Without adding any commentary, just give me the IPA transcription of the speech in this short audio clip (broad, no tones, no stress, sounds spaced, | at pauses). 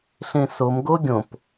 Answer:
ɬ ẽ s o m ɡ o ɡʲ õ p